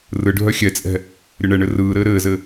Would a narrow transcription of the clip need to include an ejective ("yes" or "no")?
yes